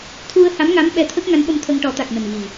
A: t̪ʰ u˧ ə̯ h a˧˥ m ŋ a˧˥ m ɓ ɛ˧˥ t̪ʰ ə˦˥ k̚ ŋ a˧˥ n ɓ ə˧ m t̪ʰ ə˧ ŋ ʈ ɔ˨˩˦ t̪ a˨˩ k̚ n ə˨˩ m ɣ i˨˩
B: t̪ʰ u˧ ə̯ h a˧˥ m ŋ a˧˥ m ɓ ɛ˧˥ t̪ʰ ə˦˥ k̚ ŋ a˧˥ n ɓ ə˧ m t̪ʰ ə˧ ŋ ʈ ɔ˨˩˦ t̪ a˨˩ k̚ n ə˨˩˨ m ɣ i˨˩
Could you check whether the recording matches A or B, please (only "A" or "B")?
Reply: A